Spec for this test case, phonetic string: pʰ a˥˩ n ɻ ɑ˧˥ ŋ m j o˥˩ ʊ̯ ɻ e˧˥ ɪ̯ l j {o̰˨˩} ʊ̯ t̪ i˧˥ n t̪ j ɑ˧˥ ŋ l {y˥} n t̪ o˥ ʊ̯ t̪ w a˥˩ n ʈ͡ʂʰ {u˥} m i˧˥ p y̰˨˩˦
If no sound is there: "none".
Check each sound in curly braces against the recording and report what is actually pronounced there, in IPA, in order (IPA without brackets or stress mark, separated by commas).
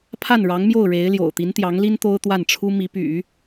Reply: o̰˨˩, i˥, u˥